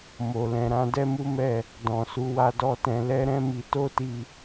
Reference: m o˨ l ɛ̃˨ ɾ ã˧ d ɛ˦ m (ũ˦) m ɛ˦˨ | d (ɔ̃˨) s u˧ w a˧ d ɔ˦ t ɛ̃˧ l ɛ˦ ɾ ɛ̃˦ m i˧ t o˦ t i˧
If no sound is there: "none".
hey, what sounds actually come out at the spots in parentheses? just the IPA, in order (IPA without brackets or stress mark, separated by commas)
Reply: u˦, ɔ̃˨